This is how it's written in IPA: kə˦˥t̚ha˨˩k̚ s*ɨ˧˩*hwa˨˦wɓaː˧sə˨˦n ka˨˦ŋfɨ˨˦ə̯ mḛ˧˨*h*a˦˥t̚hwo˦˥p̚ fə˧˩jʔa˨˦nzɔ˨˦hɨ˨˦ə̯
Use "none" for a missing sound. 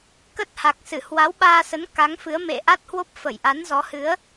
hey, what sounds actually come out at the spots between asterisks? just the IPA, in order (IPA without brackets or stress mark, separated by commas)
ɨ˧˩, ʔ